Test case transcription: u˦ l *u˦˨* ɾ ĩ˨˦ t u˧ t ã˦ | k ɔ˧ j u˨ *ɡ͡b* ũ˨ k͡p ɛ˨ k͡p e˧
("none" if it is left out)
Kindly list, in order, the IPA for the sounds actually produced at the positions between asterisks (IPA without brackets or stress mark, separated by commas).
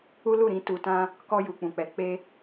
u˦˨, k͡p